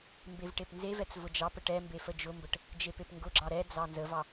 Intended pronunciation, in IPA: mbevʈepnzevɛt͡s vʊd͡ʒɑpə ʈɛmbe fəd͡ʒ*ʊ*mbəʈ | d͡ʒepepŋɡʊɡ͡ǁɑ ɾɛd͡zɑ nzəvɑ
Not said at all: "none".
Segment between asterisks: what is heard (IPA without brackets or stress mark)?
ʊ